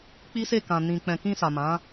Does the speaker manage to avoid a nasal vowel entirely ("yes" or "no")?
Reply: no